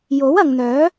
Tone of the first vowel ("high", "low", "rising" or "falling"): rising